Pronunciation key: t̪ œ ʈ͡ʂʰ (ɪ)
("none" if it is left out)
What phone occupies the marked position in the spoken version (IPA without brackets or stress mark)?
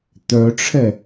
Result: ɛ